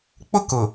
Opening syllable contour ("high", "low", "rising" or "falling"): high